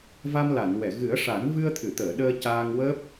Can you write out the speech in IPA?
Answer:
v a˧ m l a˨˩˨ n w ɛ˨˩˨ ɣ ɨ˨˩˦ ə̯ ʂ a˨˩˦ n v ɨ˧ ə̯ t̪ʰ ɨ˨˩˨ t̪ əː˨˩˨ ɗ əː˧ c aː˧ ŋ w əː˦˥ p̚

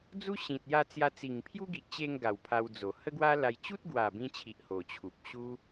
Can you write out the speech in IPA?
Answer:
d͡z u˦ ɕ ĩ˨ t̚ j a˧ t͡s j a˧ t͡s i˨˩ ŋ pʰ j u˦ ɡ i˨ ʔ t͡ɕ e˧ ŋ ɡ a˨˩ w pʰ a˧ w d͡z o˨˩ h ə˦ ɡ w a˦ l a˧ j t͡ɕ u˦ t̚ ɡ w a˨˩ b ĩ˧ t͡ɕʰ i˨ ʔ h o˨˩ t͡ɕʰ u˨ p̚ ɕ u˦

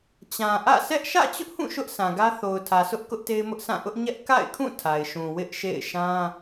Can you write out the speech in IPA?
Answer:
t͡ɕ ã˨ ʔ ä̰˦˨ s ɛ˦ ʔ ʃ ä̰˦˨ t͡ɕ ʊ˦ ʔ h ũ˦˨ ʃ ʊ˦ ʔ s ã˨ ɡ ä˦ θ o˨ ʊ̯ tʰ ä˨ sʰ ʊ˦ ʔ k ʊ˦ ʔ t e˦ ɪ̯ m ʊ˦ ʔ s ã˦˨ ʔ ʊ˦ ʔ ɲ ɛ˦ ʔ k a̰˦˨ ɪ̯ kʰ ũ˦˨ tʰ a˨ ɪ̯ ʃ ũ˨ w ɪ˦ ʔ ʃ ḛ˦˨ ɪ̯ ʃ ã˦

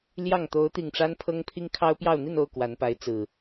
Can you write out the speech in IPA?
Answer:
l j ɑ˥˨ ŋ t̪ o˨˦ ʊ̯ t̪ i˨˩ ŋ ʈ͡ʂ a˦ n pʰ ɤ˦ ŋ pʰ i˦ ŋ kʰ ɑ˦ ʊ̯ p j ɑ˥˨ ʊ̯ n̪ i˥˨ n o˥˨ ʊ̯ k w a˨˦ n p a˨˦ ɪ̯ t͡s ɹ̩˨˩

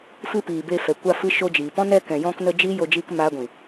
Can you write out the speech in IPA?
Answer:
f ɨ˦ p iː˨ b e˧ f ɛ˨ kʷ a˧ f ɨ˧ ʃ o˧ d͡ʒ iː˨ p ɔ̃˦ n ɛ˧ k ɛ̃˨ j ɔ̃˧ k n ə˧ d͡ʒ iː˦ j o˧ d͡ʒ iː˧ k m aː˧ ɡʷ ĩ˨

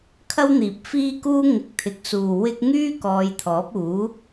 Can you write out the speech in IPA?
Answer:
kʰ ɐ˥ w n̪ iː˨ p̚ f iː˥ k uː˥ ŋ ɪ˨˥ k̚ t̪ʰ ɪ˨˥ k̚ s uː˨ w ɪ˥ k̚ ŋ yː˥ k ɔː˨˧ j t̪ʰ ɔː˨˥ p̚ uː˨˥

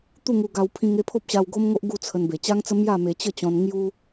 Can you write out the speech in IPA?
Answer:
t̪ u˥˧ ŋ u˧ ɡ a˧ w pʰ ĩ˧ ŋ e˥˧ pʰ o˦ p̚ ɕ a˧ w ɡ o˦ m ŋ o˦ ʔ ɡ u˥˧ t͡sʰ ə˧ n b e˨˩ t͡ɕ a˦ ŋ t͡s ə˦ m j a˥˧ m e˧ t͡ɕ ə˥˧ t͡ɕ ɔ̃˧ n ŋ j u˦

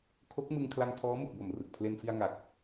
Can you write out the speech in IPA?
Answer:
kʰ o˦˥ k̚ m ɯ˧ ŋ kʰ l a˧ ŋ tʰ ɔː˦˥ m u˨˩ k̚ b o˨˩ m r ɯ˨˩ k̚ pʰ l e˧ n f i˧ a̯ ŋ a˨˩ k̚

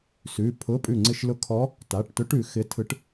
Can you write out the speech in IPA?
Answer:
s ʉ˩˧˩ pʰ ʊ˧˥˧ pʼ ʉ˧˩ ŋ͡ǀ ɪ˧˩ ʃ l ʊ˧˥ kʰ ɔ˧˥ | t a˩˧˩ ʈ t ʊ˧˥ ʈ ʉ˩˧ x ɪ˧˥ tʰ ɯ˧˥ ʈ

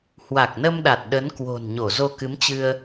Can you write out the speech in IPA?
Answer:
h w a˨˩ k̚ n ə˧ m ɗ a˨˩ t̚ ɗ ə˨˦ n k w o̤˨˩ n ɲ o˧˩ z o˧ k ɨ˨˦ m t͡ɕ ɨ˧ ə̯

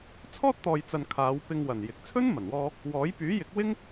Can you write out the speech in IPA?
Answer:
t͡sʰ ɔː˥ t̚ t̪ ɔː˨ j t͡s ɐ˨ n kʰ aː˨˧ w p ɪ˧ ŋ w ɐ˨˩ n j ɪ˨ k̚ t͡sʰ ɵ˥ n m ɐ˨˩ n w ɔː˧ | w ɔː˨˥ j p yː˨˥ j ɪ˨˥ k̚ w ɪ˥ ŋ

